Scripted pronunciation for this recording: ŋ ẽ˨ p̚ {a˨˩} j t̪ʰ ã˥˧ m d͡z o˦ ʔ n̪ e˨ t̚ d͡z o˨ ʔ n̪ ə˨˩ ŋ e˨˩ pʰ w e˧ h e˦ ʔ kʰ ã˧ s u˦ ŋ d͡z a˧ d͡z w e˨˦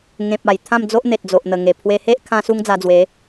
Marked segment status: correct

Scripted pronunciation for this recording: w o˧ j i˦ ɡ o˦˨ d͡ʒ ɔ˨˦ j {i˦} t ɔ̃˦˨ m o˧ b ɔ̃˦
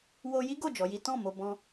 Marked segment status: correct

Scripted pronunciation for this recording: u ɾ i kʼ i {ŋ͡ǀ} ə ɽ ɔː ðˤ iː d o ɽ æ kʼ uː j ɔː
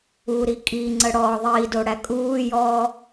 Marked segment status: correct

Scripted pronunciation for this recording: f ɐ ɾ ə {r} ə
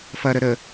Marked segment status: incorrect: ɾ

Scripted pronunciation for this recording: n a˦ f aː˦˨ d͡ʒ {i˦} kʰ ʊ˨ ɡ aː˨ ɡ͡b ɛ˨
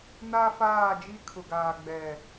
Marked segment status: correct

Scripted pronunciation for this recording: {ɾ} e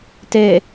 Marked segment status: incorrect: t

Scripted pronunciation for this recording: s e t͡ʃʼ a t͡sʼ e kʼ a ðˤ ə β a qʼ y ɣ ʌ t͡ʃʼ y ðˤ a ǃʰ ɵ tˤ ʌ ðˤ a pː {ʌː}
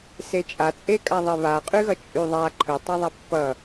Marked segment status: incorrect: ʌ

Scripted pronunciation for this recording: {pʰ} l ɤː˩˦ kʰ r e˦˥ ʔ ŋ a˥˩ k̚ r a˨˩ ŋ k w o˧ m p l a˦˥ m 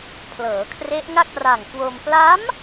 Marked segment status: correct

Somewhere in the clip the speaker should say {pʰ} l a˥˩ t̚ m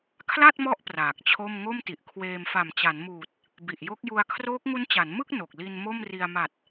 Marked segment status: incorrect: kʰ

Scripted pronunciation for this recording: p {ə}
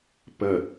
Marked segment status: correct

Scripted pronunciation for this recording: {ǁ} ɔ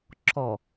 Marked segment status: correct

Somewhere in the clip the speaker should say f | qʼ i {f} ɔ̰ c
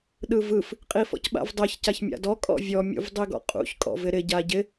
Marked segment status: correct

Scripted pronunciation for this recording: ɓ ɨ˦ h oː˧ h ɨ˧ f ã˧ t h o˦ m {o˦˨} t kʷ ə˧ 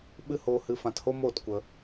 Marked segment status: correct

